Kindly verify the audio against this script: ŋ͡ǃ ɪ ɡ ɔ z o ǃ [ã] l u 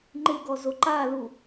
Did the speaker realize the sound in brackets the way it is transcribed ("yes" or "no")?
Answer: no